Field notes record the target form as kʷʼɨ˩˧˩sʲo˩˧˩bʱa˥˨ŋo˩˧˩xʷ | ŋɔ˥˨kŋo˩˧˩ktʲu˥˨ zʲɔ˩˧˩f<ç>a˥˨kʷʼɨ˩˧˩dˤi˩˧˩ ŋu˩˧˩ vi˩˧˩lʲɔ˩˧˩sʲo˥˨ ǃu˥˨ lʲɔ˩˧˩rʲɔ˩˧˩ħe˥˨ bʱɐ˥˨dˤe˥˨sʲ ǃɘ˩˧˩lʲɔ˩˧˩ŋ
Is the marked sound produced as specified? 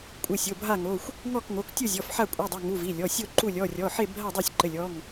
no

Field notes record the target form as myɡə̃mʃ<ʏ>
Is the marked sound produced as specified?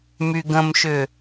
yes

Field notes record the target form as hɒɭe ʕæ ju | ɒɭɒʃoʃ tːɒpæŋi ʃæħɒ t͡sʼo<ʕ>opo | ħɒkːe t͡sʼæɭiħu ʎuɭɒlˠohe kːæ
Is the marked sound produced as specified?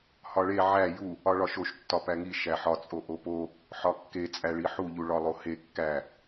no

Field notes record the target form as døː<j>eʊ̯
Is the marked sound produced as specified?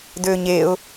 no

